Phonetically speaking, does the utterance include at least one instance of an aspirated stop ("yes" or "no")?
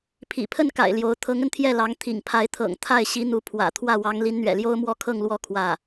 yes